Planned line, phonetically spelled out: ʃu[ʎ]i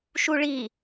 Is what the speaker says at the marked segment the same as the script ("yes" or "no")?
no